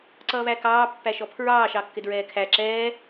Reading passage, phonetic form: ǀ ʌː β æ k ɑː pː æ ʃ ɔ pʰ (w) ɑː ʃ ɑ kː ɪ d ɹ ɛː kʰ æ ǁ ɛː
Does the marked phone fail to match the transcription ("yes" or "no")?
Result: yes